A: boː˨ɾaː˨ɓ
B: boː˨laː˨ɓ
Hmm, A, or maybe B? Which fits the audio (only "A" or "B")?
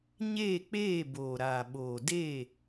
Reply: A